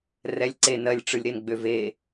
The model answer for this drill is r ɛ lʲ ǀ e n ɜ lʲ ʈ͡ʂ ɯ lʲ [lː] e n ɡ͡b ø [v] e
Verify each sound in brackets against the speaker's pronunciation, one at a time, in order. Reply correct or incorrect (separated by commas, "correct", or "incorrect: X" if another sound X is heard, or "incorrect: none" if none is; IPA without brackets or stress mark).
incorrect: ɾ, correct